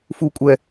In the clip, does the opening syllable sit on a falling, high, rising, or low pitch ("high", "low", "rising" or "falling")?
low